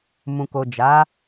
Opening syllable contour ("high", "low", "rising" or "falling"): low